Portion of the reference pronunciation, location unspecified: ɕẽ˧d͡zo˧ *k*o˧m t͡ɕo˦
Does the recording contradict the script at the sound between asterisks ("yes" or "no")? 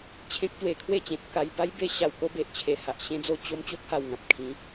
yes